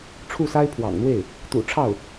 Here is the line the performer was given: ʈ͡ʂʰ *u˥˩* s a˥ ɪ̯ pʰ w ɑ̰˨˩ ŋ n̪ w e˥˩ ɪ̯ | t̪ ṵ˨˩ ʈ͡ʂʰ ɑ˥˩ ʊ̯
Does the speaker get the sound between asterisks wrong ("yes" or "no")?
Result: no